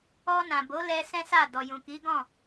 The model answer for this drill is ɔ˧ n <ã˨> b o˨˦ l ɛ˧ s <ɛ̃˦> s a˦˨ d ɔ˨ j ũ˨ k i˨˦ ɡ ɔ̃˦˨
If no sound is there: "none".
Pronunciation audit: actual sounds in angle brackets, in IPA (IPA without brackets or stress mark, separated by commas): ã˨, ɛ̃˦